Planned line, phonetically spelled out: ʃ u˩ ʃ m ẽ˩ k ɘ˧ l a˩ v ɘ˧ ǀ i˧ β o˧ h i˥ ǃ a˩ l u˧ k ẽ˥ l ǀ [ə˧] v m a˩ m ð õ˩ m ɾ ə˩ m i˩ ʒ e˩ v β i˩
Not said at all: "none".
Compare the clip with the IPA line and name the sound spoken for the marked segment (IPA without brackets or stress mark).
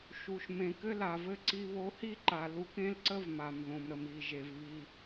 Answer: ə˥